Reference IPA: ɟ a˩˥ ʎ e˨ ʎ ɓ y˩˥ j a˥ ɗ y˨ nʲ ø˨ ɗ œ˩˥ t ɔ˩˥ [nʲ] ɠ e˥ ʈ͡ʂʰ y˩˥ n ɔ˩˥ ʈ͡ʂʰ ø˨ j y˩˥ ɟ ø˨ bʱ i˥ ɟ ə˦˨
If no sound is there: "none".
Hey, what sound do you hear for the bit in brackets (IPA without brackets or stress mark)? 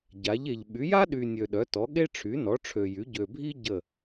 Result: none